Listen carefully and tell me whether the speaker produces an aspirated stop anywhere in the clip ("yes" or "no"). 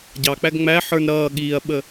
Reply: no